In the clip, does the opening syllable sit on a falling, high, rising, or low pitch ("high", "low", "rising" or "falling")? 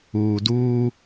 low